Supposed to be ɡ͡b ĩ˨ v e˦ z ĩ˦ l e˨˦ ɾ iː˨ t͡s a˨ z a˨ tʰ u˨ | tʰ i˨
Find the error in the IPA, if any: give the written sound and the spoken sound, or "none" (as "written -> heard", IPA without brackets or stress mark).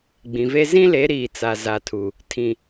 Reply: i˨ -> ĩ˨